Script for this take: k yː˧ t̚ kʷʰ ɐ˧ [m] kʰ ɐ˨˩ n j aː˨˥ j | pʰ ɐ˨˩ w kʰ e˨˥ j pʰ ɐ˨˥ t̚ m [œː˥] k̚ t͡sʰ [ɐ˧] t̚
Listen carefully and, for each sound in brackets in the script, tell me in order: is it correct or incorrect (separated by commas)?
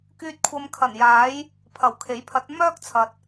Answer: correct, correct, incorrect